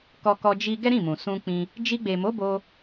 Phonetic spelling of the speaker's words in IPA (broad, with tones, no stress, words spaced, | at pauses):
kɔ˧kɔ˧ d͡ʒi˧ ɡɛ˦ɾĩ˦˨mũ˨ sũ˧k͡pĩ˧ | d͡ʒi˧ɡ͡be˨mo˨˦ bo˧